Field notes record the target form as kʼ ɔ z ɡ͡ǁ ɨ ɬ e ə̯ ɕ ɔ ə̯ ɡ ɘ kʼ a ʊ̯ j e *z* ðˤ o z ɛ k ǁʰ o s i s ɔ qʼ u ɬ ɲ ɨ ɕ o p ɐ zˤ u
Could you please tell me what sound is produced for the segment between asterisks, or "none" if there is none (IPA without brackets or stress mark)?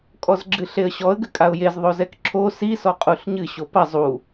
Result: z